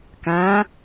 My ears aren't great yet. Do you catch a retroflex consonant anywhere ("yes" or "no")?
no